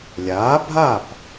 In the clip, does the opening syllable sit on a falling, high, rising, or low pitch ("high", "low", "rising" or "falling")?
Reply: rising